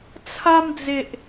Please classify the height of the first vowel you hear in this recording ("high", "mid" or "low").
low